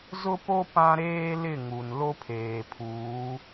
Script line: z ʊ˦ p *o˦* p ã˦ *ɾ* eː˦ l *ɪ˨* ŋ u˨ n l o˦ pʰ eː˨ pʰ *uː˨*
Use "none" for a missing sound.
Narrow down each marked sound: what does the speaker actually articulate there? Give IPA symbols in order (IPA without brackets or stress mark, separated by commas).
o˦, ɾ, ɪ˦˨, uː˨˦